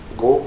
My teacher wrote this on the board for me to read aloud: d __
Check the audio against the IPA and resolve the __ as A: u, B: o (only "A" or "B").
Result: B